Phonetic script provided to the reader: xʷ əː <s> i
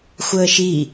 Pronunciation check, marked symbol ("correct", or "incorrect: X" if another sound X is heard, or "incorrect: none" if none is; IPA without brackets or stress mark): incorrect: ʃ